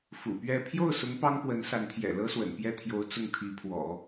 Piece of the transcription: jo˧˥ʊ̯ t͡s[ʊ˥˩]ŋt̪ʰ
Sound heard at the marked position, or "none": ʊ˥˩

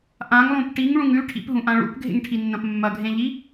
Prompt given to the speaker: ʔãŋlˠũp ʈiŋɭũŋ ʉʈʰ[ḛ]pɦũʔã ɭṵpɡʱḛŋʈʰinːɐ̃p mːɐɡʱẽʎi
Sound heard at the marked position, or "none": ḭ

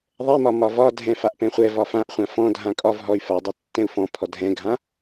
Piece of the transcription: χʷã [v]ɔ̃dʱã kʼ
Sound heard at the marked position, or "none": f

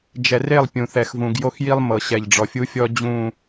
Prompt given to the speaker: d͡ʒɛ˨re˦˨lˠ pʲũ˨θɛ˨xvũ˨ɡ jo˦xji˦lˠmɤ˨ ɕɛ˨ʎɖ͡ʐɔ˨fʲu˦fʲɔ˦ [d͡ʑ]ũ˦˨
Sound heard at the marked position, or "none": d͡ʑ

